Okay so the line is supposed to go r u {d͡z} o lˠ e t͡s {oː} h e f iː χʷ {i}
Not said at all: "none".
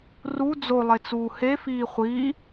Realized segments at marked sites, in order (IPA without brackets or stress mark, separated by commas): d͡z, uː, i